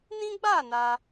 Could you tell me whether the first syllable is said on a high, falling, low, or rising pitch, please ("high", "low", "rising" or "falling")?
high